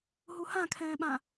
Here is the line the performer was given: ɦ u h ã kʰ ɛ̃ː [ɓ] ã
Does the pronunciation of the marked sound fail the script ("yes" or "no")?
no